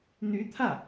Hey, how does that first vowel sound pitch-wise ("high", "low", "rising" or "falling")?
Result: rising